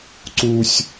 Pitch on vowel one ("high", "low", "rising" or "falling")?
high